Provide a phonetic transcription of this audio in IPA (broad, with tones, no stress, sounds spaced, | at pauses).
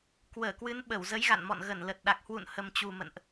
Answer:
k w əː˧˩ k w ɨ˨˦ n ɓ ə˧˩ w z ə˨˦ j ɣ a̰˧˨ n m ɔ̰˧˨ n ɣ ə˧˩ n l ə˨˩ t̚ ɗ a˨˩ k̚ h w ṵ˧˨ n h ə˨˩ m t͡ɕ u˨˩ m ə̰˧˨ n ʔ